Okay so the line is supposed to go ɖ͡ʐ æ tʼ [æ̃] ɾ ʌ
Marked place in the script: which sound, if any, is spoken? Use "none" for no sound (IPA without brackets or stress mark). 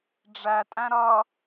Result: æ̃